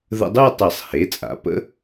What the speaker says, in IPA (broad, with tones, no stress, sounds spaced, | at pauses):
ð ə̰˧ dˤ ɯ˥˧ tˤ e˨˩˦ sˤ h e˩˥ t͡sʼ a̰˩˥ p ə̰˧˥